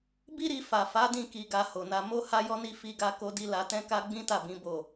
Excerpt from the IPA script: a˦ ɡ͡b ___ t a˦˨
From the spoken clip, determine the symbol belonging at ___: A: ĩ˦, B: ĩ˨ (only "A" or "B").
A